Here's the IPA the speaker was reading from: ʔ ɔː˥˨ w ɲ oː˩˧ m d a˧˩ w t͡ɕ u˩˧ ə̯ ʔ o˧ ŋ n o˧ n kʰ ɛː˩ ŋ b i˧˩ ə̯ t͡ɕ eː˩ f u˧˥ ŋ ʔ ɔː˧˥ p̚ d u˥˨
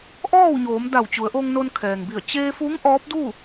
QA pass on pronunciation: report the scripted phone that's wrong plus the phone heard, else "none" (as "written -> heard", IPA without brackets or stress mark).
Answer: eː˩ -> eː˧